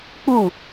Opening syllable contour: falling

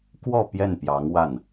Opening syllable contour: falling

